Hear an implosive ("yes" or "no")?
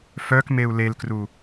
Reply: no